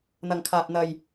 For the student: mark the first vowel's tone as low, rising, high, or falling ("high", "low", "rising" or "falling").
low